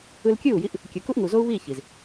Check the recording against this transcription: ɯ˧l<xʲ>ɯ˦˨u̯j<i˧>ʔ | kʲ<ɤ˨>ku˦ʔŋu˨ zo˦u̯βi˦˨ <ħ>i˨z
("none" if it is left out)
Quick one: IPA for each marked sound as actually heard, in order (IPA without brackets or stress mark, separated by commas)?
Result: kʲ, i˧, ɯ˨, ç